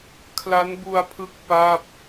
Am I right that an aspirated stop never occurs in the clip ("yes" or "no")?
no